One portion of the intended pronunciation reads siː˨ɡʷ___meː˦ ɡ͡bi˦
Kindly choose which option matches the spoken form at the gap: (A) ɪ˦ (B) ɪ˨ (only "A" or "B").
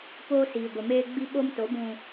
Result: B